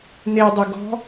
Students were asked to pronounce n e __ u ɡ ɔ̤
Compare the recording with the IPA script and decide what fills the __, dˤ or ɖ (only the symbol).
dˤ